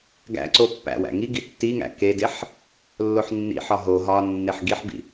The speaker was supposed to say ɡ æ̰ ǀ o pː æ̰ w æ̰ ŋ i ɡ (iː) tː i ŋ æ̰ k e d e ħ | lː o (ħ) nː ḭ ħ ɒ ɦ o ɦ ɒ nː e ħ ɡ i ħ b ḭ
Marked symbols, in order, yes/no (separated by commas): no, yes